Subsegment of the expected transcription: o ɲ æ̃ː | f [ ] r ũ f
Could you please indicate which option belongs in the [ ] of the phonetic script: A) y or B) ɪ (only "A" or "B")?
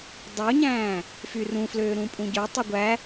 A